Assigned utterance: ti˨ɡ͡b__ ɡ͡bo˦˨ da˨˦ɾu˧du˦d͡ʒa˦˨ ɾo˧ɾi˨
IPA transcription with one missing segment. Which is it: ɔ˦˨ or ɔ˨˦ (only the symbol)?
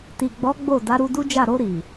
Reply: ɔ˨˦